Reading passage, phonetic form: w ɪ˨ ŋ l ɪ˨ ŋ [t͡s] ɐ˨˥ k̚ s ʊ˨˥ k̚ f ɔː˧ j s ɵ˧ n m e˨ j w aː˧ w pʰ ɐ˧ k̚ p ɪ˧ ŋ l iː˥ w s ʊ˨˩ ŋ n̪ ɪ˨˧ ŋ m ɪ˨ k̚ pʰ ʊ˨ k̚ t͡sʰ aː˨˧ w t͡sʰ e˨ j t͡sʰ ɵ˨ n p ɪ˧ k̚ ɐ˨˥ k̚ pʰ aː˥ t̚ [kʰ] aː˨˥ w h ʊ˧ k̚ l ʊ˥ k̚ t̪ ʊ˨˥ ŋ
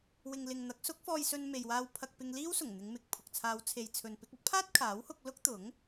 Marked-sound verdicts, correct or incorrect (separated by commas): incorrect, correct